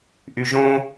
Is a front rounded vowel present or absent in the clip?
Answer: present